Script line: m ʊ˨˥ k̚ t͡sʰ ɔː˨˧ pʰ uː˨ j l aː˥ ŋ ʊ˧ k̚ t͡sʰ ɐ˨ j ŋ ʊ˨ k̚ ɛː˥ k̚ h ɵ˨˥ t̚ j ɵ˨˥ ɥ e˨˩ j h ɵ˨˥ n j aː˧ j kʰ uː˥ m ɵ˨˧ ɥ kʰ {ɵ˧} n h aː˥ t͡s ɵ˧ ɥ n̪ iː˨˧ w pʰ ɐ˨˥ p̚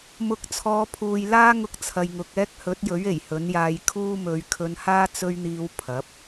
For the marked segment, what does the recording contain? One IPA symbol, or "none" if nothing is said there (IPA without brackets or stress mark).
ɵ˧